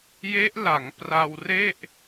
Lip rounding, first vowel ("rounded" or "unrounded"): unrounded